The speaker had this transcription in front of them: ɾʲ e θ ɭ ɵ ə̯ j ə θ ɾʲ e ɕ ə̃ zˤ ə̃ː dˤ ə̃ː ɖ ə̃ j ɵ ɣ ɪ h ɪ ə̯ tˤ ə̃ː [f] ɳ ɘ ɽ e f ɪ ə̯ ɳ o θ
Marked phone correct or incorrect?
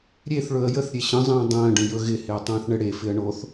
incorrect